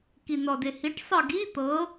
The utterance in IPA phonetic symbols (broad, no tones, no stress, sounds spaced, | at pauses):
k i n ɔ d e h i ʈ sˤ ɤ ɡ i t̪ ɤ